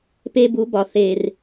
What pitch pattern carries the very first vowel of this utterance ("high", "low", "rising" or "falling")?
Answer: high